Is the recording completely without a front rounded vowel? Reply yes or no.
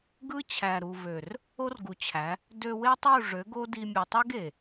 no